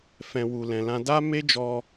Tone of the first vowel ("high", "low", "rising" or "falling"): low